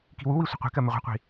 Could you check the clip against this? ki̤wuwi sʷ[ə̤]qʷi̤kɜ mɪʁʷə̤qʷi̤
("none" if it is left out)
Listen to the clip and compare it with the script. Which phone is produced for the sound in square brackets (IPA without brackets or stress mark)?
ə̤